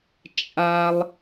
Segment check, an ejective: present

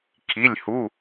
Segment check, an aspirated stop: present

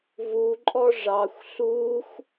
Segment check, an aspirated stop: absent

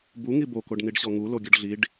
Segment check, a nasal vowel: absent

